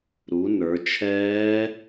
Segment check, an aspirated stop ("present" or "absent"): present